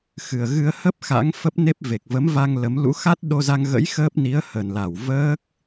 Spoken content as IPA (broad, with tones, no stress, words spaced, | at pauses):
xɨ˨˩ə̯ ɣɨ˧ə̯hə˦˥p̚ xa̰˧˥ŋfə˦˥p̚ ne˦˥p̚ve˨˩k̚ və˨˦mva˧ŋ lə˨˦m lṵ˧˥xa˦˥t̚ ɗo˧za˧ŋɣə̰˧˥j xəː˦˥p̚ni˨˦ə̯ hə˨˩nla˧˩w vəː˦˥k̚